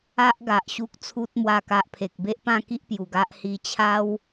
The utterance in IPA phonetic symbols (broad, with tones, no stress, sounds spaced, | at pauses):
a˦ ʔ ɡ a˨ ʔ ɕ u˦ k̚ t͡sʰ u˦ t̚ m w a˥˧ k a˦ ʔ pʰ e˨ k̚ b e˦ ʔ p ã˥˧ k i˦ ʔ p j u˨˩ ɡ a˦ ʔ h i˧ t͡ɕʰ a˦ w